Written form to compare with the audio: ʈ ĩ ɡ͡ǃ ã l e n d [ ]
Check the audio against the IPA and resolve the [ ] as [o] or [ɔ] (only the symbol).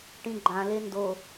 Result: o